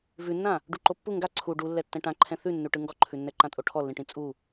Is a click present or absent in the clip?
present